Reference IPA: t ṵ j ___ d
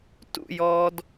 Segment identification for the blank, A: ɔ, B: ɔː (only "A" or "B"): B